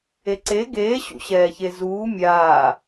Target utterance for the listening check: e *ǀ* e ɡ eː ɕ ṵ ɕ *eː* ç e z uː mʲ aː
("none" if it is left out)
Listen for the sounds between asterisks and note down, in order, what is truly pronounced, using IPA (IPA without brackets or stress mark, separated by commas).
ǀ, ɛː